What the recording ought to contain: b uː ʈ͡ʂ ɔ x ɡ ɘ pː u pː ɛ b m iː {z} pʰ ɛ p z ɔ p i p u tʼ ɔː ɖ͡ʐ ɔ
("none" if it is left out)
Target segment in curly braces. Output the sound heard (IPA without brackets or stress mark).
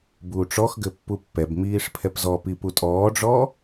ʂ